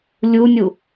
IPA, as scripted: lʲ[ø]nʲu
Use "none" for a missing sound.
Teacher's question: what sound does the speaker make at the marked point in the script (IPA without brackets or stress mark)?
u